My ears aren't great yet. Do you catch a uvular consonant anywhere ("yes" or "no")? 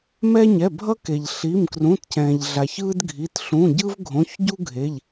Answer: no